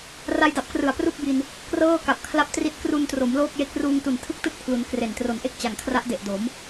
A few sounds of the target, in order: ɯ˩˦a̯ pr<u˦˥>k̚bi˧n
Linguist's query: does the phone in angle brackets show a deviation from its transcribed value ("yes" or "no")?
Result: yes